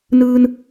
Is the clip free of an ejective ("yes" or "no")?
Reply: yes